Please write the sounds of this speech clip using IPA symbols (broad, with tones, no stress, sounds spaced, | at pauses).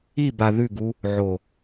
i˦˨ b a˨ ð ʉ˦˨ ɡ u˦ | ʕ o˨